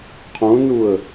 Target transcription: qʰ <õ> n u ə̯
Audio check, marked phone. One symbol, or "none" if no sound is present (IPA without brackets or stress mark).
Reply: õ